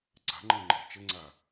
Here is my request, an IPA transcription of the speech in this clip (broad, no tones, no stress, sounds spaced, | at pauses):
ǀ a̤ ŋ͡ǃ ɛ̃ ŋ͡ǃ ɛ̤ t͡ʃ ə ŋ͡ǀ a